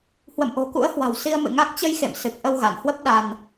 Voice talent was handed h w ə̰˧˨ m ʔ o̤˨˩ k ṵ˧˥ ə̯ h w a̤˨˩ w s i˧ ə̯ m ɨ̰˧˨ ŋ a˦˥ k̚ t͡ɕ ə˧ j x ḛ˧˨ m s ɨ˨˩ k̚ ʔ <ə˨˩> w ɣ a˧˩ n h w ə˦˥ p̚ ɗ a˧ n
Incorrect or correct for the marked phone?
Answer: incorrect: ə˧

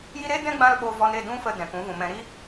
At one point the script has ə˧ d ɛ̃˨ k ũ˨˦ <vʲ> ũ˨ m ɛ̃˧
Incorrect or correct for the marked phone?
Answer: incorrect: v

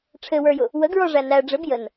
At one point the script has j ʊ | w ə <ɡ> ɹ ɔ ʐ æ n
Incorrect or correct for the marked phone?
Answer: correct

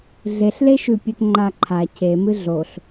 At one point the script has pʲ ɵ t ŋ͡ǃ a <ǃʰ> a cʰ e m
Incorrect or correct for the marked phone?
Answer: correct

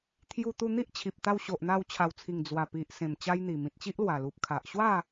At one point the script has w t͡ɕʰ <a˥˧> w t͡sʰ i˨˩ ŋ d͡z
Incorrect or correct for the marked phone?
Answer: incorrect: a˨˩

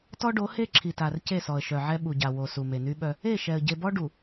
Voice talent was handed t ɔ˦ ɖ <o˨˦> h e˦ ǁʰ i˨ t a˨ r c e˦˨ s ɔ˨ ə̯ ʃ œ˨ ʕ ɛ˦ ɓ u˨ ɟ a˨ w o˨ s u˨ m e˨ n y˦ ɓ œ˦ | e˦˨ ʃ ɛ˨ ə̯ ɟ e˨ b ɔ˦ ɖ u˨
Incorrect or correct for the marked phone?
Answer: correct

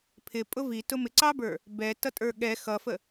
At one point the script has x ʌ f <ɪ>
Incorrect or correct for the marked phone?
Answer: incorrect: ə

